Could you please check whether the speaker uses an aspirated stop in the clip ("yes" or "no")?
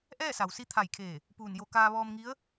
yes